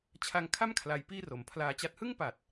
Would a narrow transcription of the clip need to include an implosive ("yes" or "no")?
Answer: no